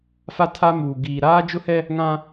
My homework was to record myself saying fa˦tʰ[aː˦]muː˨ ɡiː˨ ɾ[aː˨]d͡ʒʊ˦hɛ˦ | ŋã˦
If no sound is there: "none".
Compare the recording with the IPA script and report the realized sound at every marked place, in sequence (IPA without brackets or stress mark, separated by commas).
a˦, aː˦